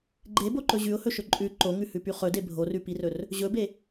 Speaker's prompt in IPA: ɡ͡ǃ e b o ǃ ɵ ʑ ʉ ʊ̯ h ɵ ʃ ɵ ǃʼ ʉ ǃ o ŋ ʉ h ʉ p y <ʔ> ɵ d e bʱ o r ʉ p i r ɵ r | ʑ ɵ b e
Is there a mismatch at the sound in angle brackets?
yes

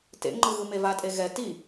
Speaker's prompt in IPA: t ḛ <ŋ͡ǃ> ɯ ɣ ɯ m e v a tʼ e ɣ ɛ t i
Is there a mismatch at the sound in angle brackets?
no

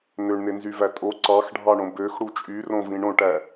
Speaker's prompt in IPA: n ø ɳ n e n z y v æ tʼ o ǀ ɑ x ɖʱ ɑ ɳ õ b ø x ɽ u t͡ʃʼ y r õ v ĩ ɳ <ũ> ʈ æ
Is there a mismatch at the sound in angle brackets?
yes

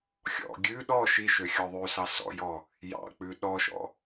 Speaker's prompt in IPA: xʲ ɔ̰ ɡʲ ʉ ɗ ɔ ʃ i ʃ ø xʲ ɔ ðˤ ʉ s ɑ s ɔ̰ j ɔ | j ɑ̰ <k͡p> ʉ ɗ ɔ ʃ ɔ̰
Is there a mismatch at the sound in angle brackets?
no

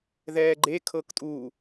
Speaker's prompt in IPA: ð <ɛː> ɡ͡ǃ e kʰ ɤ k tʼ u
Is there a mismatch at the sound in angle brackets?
no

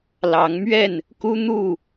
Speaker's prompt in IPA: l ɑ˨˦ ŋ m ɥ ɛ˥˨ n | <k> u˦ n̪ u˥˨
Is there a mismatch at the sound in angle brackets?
no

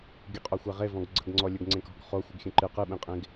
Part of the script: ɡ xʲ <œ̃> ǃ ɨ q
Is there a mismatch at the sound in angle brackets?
yes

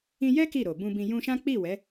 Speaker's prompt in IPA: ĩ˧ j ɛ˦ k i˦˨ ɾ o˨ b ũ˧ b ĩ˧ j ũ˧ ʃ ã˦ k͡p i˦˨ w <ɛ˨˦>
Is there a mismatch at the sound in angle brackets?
no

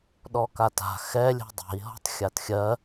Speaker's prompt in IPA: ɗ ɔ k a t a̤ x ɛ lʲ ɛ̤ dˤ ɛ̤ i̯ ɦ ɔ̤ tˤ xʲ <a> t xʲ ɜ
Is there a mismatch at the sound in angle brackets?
no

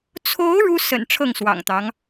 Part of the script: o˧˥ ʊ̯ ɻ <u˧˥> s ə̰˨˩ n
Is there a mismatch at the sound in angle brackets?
yes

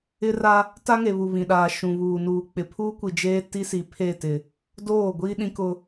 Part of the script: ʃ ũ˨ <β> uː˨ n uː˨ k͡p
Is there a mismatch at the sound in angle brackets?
no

